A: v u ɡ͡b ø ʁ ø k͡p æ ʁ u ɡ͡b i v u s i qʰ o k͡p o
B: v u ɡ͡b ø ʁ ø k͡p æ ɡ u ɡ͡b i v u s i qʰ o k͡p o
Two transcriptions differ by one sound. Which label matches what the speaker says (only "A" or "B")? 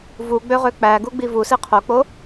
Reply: B